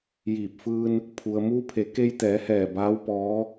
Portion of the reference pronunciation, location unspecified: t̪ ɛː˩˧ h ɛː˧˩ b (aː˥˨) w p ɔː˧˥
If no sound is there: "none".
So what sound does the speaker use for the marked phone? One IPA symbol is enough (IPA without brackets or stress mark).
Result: aː˧˥